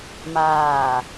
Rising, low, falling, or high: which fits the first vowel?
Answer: falling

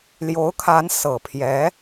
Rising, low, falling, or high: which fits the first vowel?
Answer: rising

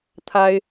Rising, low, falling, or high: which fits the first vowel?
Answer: high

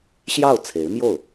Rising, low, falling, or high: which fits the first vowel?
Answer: falling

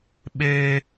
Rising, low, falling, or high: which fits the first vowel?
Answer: high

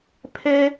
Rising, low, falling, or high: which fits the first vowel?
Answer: high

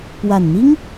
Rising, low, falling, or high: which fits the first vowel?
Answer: low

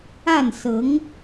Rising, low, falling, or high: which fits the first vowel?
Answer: falling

